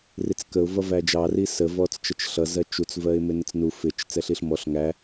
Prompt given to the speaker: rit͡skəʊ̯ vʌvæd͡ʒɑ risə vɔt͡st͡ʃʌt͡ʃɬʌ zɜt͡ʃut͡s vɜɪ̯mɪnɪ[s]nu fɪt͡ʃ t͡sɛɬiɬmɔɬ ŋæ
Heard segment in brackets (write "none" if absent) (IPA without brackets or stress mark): t͡s